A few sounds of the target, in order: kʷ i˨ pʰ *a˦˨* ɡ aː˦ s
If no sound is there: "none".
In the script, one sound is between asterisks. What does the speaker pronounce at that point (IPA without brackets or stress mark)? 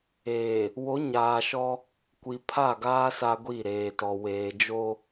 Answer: a˦˨